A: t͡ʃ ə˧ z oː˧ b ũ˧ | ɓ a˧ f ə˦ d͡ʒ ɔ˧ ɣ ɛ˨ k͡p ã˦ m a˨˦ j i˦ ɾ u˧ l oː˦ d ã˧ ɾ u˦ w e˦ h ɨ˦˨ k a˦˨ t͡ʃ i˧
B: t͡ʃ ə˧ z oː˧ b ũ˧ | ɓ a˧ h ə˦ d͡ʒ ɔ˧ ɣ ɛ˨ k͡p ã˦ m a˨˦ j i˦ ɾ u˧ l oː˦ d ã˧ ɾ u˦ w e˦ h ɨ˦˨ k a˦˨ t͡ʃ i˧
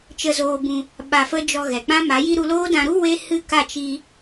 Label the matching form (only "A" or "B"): A